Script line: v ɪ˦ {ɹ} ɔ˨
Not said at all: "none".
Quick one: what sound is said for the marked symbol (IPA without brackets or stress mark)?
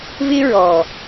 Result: ɹ